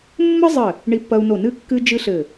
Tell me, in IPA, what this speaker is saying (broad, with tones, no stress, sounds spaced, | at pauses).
mː ɘ˥ zˤ ɘ˧˩ | ɳ i˧ pː ɐ˧ u̯ n o˧˩ n ɨ˥˧ kː ɨ˥ d͡ʒ ɨ˥ ɬ ɘ˧˩